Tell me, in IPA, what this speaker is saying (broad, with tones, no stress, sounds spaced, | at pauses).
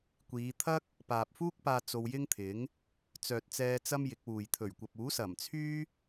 kʷ iː˨˧ t̪ʰ ɐ˥ k̚ | p aː˨ p̚ f uː˥ k̚ p aː˧ t͡s o˧ w j ɪ˥ ŋ t̪ʰ ɪ˨˥ ŋ | t͡s œː˨ t̚ t͡s ɛː˧ t͡s ɐ˥ m j ɪ˨˥ k̚ w uː˨ j t̪ʰ ɵ˨˩ ɥ kʷ ɐ˨ p̚ uː˨˥ s ɐ˨˩ m t͡sʰ yː˥